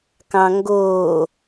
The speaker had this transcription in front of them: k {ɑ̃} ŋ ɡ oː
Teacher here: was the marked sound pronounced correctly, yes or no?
yes